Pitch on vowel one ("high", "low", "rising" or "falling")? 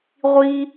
high